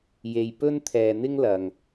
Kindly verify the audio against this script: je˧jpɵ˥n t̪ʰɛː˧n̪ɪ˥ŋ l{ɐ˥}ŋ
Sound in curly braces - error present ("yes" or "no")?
yes